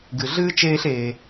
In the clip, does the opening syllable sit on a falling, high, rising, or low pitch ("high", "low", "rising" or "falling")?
low